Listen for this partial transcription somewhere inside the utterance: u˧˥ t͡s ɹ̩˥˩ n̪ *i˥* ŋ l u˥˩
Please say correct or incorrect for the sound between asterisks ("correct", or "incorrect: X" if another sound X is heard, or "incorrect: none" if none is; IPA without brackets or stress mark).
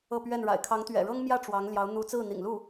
incorrect: ḭ˨˩